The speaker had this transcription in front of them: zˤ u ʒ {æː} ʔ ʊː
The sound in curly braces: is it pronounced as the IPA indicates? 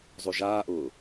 no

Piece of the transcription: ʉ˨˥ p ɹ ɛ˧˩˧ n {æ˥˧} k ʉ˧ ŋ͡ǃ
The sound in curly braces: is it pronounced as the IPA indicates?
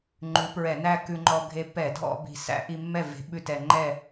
yes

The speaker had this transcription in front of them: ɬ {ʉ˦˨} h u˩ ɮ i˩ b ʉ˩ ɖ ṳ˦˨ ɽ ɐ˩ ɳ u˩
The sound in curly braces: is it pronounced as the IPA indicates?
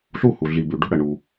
no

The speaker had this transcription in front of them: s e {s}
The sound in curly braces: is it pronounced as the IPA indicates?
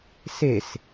yes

